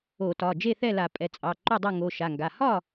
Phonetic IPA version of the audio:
o˧˩˧ t ɒ˩˧˩ d͡ʒ e˥˨ θ ɛ˥˨ l a˧˩˧ pʼ ɛ˩˧˩ t͡sʼ ɑ˩˧˩ ǃ o˥˨ dˤ ɜ˥˨ ŋ o˩˧˩ ʃ a˩˧˩ ŋ ɡ a˩˧˩ h ɒ˥˨

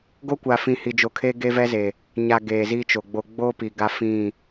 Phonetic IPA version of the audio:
ɡ o˦ kʷ a˨ f ĩ˨ h i˨ d͡ʒ o˨ kʰ e˦ ɡ e˦ v ɛ˦ z e˨ | ɲ a˨ ɡ eː˨ z iː˦ t͡ʃ o˨ ɡ͡b o˦ ɡ͡b oː˦ p i˨ ɡ a˦ f ĩ˦˨

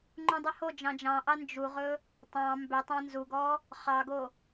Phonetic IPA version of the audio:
ŋ͡ǃ ũ dˤ ʏ h o d͡ʒ ɑ̃ d͡ʒ ɑ̃ ʔ ɑ n d͡ʒ u ʁ ɵ | tˤ ɑ̃ m b ʏ tˤ ɑ̃ n z u ɡ ɔ | χ ɑ ɡ o

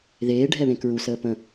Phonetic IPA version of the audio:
ð eː ɖʱ ɛ β ẽ k ɹ u s əː p ə̃

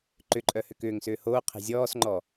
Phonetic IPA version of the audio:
ǃ ʏ ǃʼ œ h ʏ k ʏː ŋ s ʏː h oː qʰ e̤ zʲ ɔː s ŋ͡ǃ ɔ

